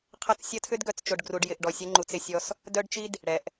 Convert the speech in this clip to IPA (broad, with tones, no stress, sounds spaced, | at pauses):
qʰ ɐ˦ t͡s sʲ ɐ˦ tʰ ʏ˦ d ɡ œ˨ t͡s t͡ʃ o˨ ɖ ɡ r u˨ ɖ j ɪ˨ ʔ ɖ ɔ˨ sʲ ɐ˦ ŋ͡ǃ u˨ t͡s ɪ˨ sʲ ɔ˦ s | d œ˦ ɖ t͡ʃ i˦ d | ɽ ɛ˨ ʔ